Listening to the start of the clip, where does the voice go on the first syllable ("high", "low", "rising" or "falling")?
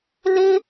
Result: high